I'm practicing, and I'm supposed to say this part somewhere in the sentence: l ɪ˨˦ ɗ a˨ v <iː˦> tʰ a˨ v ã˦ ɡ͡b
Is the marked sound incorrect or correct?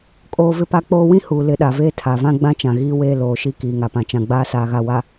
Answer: incorrect